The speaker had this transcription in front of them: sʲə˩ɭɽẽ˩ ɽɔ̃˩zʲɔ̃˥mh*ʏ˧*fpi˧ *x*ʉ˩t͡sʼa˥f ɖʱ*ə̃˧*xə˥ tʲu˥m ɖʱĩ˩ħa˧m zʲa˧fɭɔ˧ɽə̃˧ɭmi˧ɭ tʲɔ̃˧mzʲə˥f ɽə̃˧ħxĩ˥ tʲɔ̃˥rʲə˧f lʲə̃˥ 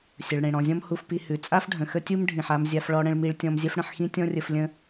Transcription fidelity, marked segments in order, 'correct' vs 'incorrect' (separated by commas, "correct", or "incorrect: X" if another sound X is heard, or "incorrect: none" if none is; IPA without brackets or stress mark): incorrect: u˧, incorrect: h, incorrect: ə̃˩